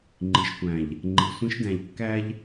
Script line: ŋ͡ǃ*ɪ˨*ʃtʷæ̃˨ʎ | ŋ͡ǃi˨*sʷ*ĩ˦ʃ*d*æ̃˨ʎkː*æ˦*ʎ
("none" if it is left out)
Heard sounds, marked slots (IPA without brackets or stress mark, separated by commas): i˨, sʷ, d, æ˦